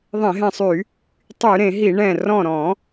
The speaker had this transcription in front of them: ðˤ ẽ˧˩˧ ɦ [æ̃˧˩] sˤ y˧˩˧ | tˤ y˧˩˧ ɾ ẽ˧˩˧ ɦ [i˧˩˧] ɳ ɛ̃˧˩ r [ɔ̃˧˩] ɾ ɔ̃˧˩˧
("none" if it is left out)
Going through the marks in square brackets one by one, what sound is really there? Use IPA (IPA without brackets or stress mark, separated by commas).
ɛ̃˧˩, i˧˩˧, ɔ̃˧˩